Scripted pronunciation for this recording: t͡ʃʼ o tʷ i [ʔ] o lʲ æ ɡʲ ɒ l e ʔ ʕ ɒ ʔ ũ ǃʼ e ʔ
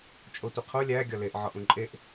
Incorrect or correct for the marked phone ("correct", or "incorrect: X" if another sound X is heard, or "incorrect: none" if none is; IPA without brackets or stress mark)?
incorrect: qʰ